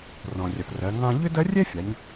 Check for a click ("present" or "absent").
absent